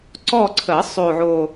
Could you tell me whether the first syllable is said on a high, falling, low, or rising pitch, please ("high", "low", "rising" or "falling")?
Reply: falling